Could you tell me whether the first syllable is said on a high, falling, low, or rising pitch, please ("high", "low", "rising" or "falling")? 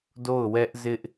falling